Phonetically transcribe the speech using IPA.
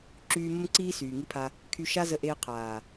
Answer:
ǁ yː˧ m ə˦ m ǀ iː˦ s yː˨ ŋ i˦ pʰ a˧ | kʰ y˧ ʃ a˦ z ə˧ ʔ eː˧ qʰ aː˨

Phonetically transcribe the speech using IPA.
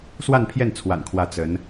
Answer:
s w a˥˧ n pʰ j ɛ˥˩ n t͡sʰ w a̰˨˩ n kʰ w ä˧˥ t͡s ə˧˥ n

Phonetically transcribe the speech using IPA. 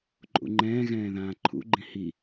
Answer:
ǃʼ ṵ ŋ͡ǃ ɛ̃ː ɣ ɛ̃ː ð ãː ǃʰ ṵ ɡ͡ǃ ĩ h i

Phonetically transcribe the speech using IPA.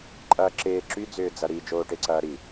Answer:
ǃʼ ɐː ǁ ɪː ǁ y d͡z ʏː d͡z ɐ ɾ i d͡ʒ oː ʈ e ǀ ɐː ɾ i

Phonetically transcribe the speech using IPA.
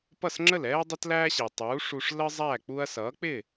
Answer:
p ʌ˥˩ s ŋ͡ǁ ə˥˩ l ɛː˥ ɐ̯ dˤ ʌ˥ t l æː˥ ɕ i˩ tˤ uː˩˥ ʂ u˧ ʂ l ə˥ zˤ æ˥˩ k͡p u˧ ɐ̯ s ʌː˩˥ k͡p ɪ˥˩

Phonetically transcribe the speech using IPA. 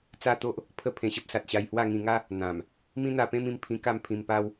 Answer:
t͡s a˦ t̪ o˦ ʔ | pʰ ə˥˧ pʰ ẽ˧ ɕ ə˦ p̚ s a˨ t̚ ɕ a˧ j h w a˥˧ ŋ ĩ˧ ŋ a˦ | n̪ ã˨˩ m | m ĩ˦ n̪ a˧ p ẽ˦ m ĩ˧ m pʰ ĩ˧ k a˥˧ m pʰ ĩ˧ m p a˦ w

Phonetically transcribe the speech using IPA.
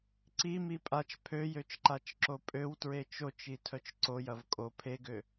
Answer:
ǀ i m i pʼ a t͡ʃ pʰ ø j ø t͡ʃ ǃ a t͡ʃ ǁ o pʼ ø w t ɹ e t͡ʃ o t͡ʃ i tʰ œ t͡ʃ ǀ o j ɐ v kʼ o pʰ e ɡ ø

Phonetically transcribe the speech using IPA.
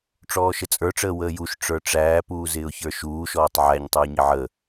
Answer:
ʈ͡ʂ ɔː ʃ ə t͡sʼ ə˞ ʈ͡ʂ əː w əː j u ʃ ʈ͡ʂ ə˞ ʈ͡ʂ æː p uː z ɪː ʊ̯ ç ə˞ ʃ uː ʃ ɔː tˤ ʕ æ ɲ tˤ ə˞ ɲ ɪ ʕ ə

